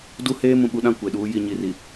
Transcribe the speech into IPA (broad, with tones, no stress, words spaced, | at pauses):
du˦heː˦ mũ˨ɓu˦ɗã˦˨ kʷe˨ɗuː˦ ji˨ɲi˨ri˨